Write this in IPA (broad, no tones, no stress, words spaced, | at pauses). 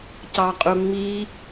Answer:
cɑqʼuŋ͡mi